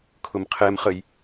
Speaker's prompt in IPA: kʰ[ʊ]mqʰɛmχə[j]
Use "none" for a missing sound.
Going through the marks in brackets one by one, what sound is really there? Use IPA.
ʊ, j

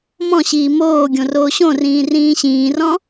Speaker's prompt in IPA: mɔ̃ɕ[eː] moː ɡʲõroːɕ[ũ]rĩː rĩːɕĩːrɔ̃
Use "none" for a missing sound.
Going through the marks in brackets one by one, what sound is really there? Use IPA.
iː, õ

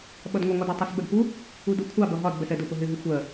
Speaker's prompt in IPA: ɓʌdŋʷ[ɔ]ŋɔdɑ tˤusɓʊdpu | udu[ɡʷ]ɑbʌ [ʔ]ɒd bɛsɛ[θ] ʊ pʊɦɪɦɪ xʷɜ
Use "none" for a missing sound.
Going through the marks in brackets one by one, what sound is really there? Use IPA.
ʌ, kʷʰ, ɦ, d

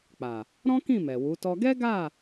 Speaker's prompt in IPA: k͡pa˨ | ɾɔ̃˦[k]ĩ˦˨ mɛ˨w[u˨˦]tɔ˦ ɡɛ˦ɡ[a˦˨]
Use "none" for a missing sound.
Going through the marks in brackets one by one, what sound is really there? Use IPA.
k, u˨˦, a˦˨

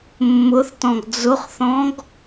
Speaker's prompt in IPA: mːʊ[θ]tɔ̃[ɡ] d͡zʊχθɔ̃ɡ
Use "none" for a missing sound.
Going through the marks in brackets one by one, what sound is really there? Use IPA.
θ, ɡ

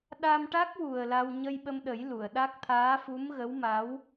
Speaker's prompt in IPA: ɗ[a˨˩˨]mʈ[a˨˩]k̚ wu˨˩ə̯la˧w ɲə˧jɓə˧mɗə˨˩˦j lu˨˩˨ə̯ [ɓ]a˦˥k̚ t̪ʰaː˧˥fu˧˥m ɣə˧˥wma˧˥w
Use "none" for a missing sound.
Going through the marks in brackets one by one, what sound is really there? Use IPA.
a˧, a˦˥, ɗ

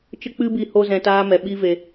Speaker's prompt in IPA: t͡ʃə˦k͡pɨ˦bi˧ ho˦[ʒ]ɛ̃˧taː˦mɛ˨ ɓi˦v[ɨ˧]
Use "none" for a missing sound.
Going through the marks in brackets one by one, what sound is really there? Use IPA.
z, e˧

